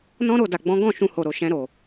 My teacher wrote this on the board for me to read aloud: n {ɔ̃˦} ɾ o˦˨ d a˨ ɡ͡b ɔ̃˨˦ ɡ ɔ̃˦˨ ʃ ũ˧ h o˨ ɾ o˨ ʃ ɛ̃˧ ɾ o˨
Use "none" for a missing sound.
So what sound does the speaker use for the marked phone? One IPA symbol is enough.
ɔ̃˦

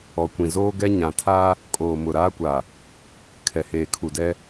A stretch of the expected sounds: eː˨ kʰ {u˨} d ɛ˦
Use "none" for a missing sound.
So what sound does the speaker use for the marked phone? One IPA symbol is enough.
u˨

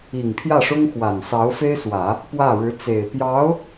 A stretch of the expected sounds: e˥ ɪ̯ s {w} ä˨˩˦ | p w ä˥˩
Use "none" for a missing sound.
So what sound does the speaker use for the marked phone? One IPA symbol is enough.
w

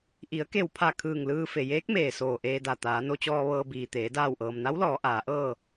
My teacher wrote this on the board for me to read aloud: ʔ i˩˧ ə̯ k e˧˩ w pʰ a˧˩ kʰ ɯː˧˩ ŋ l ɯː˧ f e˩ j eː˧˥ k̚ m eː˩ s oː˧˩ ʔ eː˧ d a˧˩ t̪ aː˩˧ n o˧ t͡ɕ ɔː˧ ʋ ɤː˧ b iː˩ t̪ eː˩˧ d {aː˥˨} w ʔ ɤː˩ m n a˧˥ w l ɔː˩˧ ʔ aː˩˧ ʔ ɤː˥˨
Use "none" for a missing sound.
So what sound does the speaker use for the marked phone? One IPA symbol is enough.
aː˧˩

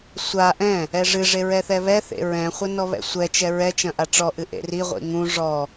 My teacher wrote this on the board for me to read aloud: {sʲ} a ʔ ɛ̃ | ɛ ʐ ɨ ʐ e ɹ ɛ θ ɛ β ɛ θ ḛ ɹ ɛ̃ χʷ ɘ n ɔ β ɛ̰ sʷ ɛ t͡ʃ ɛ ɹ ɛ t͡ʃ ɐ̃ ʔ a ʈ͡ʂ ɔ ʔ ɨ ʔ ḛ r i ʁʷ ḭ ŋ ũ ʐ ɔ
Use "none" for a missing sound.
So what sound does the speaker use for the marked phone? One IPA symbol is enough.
sʷ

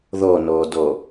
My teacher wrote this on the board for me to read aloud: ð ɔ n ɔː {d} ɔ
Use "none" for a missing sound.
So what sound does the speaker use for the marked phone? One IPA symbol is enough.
d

